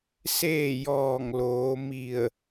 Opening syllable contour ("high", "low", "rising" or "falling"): falling